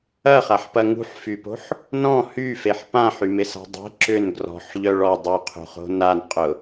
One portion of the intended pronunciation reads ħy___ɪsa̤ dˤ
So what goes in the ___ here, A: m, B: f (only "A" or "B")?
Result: A